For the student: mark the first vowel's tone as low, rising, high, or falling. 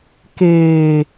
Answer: low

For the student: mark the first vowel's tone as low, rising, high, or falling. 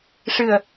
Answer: low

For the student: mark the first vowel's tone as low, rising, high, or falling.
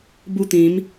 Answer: high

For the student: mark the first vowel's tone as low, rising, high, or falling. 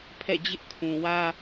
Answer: falling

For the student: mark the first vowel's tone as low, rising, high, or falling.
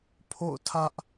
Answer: falling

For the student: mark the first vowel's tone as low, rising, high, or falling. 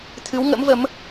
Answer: rising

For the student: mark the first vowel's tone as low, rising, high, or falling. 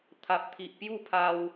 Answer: low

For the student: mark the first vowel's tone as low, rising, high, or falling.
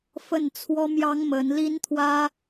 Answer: falling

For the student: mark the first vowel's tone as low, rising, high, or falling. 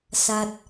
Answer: low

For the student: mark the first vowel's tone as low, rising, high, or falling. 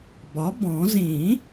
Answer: rising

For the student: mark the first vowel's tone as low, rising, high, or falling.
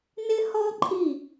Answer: high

